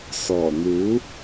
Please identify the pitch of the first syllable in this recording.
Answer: low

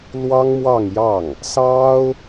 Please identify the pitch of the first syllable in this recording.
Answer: high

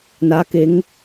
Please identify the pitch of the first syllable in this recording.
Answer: rising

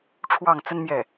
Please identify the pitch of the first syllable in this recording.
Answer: falling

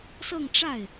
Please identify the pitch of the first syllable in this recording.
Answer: falling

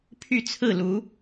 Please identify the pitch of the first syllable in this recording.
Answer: falling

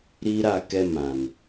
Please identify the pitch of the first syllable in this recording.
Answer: high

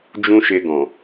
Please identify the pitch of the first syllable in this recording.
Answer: high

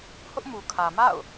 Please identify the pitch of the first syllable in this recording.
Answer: high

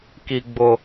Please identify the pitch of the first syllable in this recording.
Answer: high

